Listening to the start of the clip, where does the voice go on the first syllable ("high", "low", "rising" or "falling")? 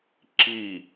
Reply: falling